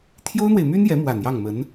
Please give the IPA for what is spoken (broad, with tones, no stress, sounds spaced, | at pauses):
t̪ʰ j o˥ ʊ̯ n̪ w e˨ ɪ̯ m y˥ n j ɛ˧˥ m w a˨˩ n j ɑ˥˩ ŋ m ə˧˥ n